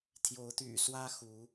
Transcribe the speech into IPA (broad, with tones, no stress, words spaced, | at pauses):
t̪ʰjo˨˦ʊ̯t̪y̰˨˩swä˦xu˨˦